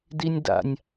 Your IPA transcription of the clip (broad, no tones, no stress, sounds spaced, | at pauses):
d i nʲ d a̰ nʲ